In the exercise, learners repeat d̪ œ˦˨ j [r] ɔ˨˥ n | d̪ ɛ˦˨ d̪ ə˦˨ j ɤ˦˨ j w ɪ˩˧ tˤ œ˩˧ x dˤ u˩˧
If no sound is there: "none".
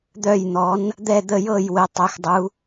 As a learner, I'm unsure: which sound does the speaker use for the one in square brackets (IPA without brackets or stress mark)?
n̪